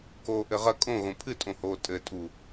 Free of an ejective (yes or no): no